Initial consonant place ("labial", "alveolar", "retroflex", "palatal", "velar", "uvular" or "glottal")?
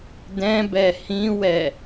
alveolar